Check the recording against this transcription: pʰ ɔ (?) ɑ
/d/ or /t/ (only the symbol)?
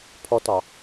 t